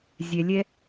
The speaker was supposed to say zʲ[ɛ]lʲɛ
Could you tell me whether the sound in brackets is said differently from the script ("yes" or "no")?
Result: no